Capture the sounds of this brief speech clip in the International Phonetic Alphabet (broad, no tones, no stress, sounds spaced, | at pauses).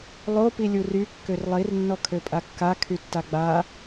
lˠ o p i lʲ u r y kː ø r lˠ i r nː ɔ kʰ ø pʼ a kː a kʰ y tː a ɡ͡b a